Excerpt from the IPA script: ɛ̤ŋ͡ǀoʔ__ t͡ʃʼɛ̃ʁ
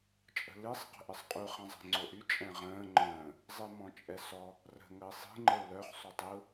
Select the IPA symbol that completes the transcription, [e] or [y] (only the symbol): y